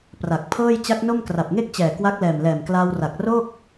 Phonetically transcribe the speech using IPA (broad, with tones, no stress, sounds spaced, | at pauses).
p r a˨˩ k̚ pʰ ɤː˥˩ j t͡ɕ a˦˥ k̚ n o˥˩ m k r a˨˩ p̚ ŋ e˥˩ k̚ t͡ɕ ɛː˨˩ k w a˦˥ k̚ l ɛː˨˩ m l ɛː˨˩ m k l aː˧ w r a˨˩ k̚ r o˥˩ k̚